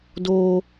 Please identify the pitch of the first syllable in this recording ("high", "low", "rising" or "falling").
high